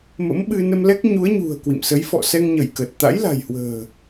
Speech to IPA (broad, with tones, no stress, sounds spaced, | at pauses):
m ə̰˧˥ m ɓ ɨ˧ n ə˧ m l ɛ˦˥ k̚ ɲ u˨˦ ə̯ ɲ ṳ˨˩ ə̯ k w ḭ˧˨ m s ə˨˦ j f ɔ̰˧˨ s ɛ˧ ŋ ɲ ə˧˩ j k əː˨˩ t̚ t̪ a̰˧˥ j l a̤˨˩ j h w ə̤ː˨˩